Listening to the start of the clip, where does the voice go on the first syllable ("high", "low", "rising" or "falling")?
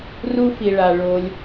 high